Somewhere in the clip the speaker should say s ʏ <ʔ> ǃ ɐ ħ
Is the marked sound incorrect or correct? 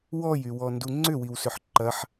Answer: incorrect